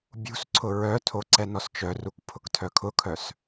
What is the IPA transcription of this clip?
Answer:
bʲṳsǀʰʊ ɹœtʰo ǀɛnɔst͡ʃœruk pʰʊktʰœkʰʊkʰœs

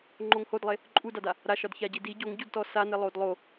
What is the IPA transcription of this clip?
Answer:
ŋ͡ǃoŋhodlˠe | ǃʼudada | ɾaʃɒdçaɟi di ɟoŋɟudtɔ sane lˠodlˠo

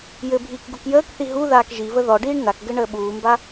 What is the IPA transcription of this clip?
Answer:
jɘbʱiːk ɡukjəːkθi ɦu ðaːkʒivə ðɔɖiːɳ nakɡɘ ɳəːɓuːmba

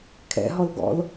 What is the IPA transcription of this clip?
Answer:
kʰɛ̰ɦɔl ɡɔ̰l

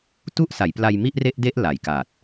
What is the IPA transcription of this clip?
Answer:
tu˥˩ʔsa˩˦jpla˧j mi˥˩ʔre˥˩ʔde˥˩ʔ la˨˩jka˨˩t̚

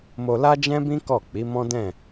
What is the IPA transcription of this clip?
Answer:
mo˧la˦d͡ʒɛ̃˦bĩ˦ kɔ˦˨k͡pi˨˦mɔ̃˦dɛ̃˦˨

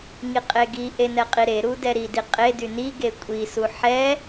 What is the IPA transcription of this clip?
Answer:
ŋiqʼeɡiʔe nɛqʼiɾeɾu dɛɾidi qʼedy niɡe kʷʼisu ħɛ

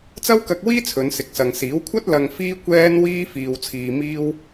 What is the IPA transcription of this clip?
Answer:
t͡sɐ˥wkɐ˧k̚wiː˥ t͡sʰɵ˨˧nsɪ˨k̚sɐ˨ŋsiː˨˥w kʷʰɐ˥t̚ lɐ˧ŋfiː˥ kʷɛː˥nwiː˥ fiː˧wt͡sʰiː˧miː˥w

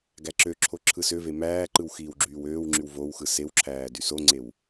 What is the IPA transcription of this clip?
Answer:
ɡæǁøǁʰo ǁʰɯsøve mæːǃɯw xiːwɡ͡ǁyːwøːwŋ͡ǁyw vowxɯ sewǁʰæː dysoŋ͡ǀew

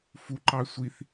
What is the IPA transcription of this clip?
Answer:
fuǃɑ sʷiθ

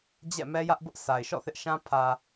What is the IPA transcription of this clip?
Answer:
d͡ʑɛ̰˦˨mɛ˦jä˦ʔbʊ˦ʔ sʰa˨ɪ̯ʃɔ̰˦˨θɪ˦ʔʃã˦ pʰä˨

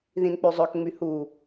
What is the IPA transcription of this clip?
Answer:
ðĩnk͡pyzˤøkŋ͡my hu

